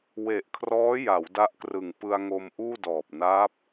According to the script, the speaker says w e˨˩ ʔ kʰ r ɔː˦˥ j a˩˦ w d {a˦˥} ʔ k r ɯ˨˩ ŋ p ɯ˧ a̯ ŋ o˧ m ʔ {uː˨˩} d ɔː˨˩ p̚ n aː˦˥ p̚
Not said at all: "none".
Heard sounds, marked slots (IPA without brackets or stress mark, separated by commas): a˦˥, uː˥˩